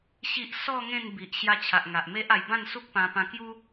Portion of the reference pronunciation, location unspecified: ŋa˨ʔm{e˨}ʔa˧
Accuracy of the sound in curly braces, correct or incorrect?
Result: incorrect